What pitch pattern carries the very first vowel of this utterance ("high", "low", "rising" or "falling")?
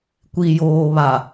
low